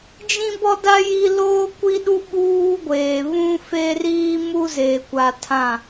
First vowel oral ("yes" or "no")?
no